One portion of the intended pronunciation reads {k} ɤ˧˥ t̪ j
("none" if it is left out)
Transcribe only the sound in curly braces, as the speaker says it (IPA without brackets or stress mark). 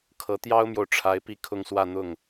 kʰ